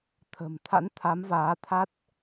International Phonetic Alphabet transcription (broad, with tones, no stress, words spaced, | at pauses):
t̪ʰə̤˨˩mt̪ʰa̰˧˥n t̪ʰa˨˦mvaː˨˦t̪ʰa˦˥t̚